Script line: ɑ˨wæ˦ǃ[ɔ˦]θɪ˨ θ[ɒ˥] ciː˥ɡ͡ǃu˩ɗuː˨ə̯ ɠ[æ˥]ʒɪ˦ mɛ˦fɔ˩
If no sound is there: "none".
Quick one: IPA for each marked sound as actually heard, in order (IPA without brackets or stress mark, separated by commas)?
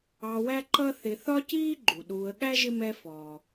ʌ˦, ɒ˥, æ˥